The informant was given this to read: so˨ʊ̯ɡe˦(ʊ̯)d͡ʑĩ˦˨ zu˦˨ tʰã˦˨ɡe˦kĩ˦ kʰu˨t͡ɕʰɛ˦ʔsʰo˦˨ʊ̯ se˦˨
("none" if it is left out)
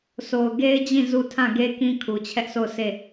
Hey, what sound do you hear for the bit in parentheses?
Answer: ɪ̯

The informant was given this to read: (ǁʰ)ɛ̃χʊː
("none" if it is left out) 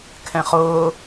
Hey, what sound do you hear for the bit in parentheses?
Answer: kʰ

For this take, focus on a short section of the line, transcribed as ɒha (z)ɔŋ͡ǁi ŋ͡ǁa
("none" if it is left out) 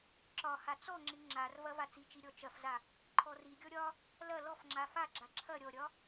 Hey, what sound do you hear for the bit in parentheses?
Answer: t͡s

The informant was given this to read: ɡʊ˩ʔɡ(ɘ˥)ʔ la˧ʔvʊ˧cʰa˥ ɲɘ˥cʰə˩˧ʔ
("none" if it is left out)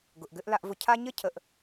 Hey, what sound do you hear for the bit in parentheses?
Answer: ɘ˧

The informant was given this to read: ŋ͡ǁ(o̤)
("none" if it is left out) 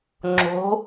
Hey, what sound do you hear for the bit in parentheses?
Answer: o̤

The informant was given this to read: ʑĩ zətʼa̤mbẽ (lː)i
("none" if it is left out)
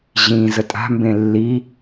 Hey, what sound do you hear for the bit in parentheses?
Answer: lː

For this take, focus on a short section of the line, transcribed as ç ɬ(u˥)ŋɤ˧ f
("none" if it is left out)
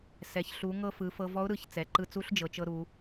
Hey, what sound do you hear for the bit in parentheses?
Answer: u˩˧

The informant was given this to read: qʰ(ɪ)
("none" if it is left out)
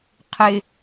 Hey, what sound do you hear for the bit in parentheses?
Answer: ɪ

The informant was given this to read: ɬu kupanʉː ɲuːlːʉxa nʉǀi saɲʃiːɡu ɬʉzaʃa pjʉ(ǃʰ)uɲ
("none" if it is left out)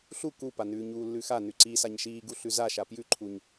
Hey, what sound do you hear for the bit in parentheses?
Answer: ǃʰ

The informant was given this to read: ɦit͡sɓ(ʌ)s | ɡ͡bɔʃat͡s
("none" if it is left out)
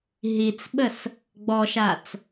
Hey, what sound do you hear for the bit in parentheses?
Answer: ə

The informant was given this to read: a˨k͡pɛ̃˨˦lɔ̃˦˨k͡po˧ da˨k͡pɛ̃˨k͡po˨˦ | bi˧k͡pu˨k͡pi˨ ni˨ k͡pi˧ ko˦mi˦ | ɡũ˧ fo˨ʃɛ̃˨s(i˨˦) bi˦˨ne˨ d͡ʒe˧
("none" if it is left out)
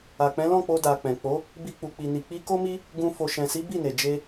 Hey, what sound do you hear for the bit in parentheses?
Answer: i˨˦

